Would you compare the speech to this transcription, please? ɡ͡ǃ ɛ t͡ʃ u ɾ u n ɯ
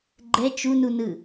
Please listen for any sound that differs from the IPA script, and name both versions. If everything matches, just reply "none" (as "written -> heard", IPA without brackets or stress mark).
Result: ɾ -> n